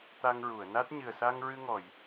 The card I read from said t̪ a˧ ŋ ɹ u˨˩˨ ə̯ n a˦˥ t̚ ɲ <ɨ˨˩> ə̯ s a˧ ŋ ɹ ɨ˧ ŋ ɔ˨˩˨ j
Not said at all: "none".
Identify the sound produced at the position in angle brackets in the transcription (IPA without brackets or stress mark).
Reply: ɨ˨˩